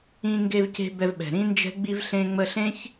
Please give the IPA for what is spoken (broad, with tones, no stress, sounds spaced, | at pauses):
ĩ˧ ŋ ɡ e˧ v c e̤˧ b ɛ˧ v ɓ ɛ̤˨ ɾ ĩ˦ n d͡ʒ ɛ̤˦ ɡ͡b i˧ v ɬ ẽ˧ ŋ͡m ə˧ ɬ ẽ˦ ç